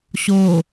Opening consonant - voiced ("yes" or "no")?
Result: no